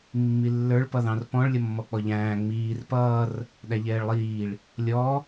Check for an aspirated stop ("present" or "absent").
absent